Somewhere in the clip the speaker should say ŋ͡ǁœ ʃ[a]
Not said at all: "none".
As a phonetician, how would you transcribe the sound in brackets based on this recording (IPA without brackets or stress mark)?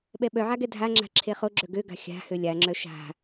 a̤